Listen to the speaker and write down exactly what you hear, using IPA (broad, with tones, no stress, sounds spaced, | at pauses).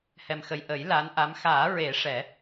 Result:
h ɛ˨˩ m x ə˨˩ j ʔ ə˨˩˦ j l a˧˥ n ʔ a˧˥ m x aː˨˩˦ ɹ e˨˩˦ ʂ ɛ˨˩˦